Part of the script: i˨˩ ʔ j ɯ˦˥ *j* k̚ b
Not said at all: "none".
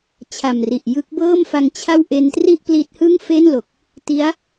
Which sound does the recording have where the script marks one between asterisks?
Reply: none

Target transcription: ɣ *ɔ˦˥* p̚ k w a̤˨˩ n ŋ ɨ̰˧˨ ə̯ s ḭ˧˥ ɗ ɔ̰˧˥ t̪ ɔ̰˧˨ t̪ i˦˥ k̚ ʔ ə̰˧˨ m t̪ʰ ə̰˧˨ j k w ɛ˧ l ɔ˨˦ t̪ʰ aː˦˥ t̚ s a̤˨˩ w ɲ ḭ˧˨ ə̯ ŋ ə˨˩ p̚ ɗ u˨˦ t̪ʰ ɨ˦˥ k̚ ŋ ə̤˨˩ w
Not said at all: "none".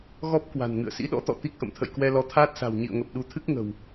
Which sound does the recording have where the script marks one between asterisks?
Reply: ɔ˦˥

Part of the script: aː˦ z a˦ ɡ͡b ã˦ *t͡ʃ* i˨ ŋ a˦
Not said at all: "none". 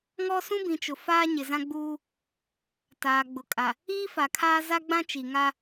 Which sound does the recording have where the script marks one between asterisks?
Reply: t͡ʃ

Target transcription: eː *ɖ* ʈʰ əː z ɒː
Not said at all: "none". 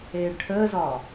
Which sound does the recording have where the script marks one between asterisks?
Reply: ɖ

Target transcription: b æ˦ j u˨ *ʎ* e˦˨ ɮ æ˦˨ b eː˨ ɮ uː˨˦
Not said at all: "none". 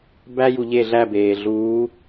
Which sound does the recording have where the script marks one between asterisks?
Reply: ʎ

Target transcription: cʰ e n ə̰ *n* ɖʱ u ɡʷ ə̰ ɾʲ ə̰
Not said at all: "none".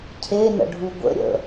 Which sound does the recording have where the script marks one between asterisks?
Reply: none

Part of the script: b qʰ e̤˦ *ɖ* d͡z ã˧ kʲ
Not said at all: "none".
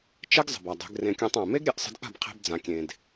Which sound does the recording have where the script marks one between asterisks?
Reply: b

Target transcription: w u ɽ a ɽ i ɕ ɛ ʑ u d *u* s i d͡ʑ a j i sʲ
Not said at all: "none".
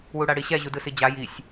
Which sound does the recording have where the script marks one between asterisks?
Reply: ɯ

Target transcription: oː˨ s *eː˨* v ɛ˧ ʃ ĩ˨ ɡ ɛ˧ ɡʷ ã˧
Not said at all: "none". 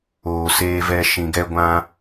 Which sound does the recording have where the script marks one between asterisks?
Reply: eː˧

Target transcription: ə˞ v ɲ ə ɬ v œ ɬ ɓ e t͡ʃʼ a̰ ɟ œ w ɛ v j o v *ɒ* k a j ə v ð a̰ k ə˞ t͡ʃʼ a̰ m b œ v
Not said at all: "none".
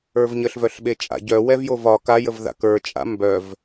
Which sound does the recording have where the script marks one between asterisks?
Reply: ɒ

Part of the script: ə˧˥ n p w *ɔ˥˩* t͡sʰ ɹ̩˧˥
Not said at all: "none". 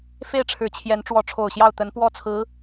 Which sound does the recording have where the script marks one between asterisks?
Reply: ɔ˥˩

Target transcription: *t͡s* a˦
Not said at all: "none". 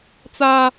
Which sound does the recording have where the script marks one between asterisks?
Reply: t͡s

